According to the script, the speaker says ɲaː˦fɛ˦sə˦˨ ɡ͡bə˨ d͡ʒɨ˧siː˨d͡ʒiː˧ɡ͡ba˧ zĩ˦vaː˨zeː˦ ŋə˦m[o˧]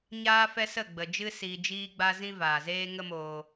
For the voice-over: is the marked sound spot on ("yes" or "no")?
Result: no